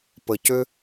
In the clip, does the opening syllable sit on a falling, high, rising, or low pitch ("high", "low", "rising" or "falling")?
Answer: low